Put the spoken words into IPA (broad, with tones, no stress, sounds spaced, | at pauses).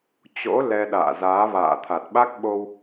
t͡ɕ o̰˧˥ l ɛ˧ ɗ a̰ː˧˨ z aː˨˦ v a̰ː˧˨ t̪ʰ a˨˩ t̚ ɓ a˦˥ k̚ ɓ o˧ w